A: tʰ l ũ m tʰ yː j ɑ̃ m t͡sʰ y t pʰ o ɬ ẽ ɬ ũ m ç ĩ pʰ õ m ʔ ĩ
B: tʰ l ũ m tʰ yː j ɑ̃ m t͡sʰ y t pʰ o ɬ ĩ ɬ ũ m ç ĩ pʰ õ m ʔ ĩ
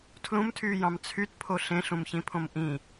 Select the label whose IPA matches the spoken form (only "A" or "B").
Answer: A